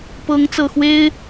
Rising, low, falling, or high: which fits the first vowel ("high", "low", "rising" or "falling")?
rising